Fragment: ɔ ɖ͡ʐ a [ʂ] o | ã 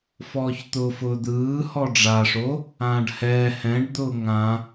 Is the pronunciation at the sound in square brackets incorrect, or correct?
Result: correct